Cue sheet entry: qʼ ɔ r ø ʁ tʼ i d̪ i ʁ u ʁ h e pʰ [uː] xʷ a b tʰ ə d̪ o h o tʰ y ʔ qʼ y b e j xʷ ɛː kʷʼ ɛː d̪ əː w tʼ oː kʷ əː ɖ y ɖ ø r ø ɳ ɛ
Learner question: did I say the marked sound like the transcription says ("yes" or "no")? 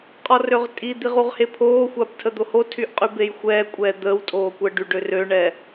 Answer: no